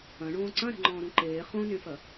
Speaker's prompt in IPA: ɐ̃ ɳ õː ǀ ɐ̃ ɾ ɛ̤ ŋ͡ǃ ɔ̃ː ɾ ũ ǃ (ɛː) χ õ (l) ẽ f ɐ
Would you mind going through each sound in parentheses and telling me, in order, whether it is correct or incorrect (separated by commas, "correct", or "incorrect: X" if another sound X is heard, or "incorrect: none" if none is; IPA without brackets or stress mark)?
incorrect: eː, incorrect: n